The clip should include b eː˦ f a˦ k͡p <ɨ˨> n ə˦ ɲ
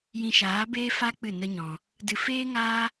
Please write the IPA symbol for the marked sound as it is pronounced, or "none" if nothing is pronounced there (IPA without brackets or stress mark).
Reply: ɨ˦˨